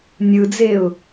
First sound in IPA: nʲ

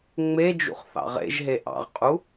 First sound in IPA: ŋ͡m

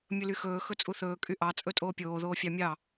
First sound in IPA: mʲ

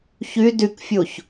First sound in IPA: ç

